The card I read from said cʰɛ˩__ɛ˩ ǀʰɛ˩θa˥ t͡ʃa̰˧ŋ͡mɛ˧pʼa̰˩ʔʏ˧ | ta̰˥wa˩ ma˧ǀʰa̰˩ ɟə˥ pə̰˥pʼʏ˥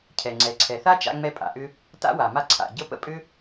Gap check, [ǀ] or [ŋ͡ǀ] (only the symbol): ŋ͡ǀ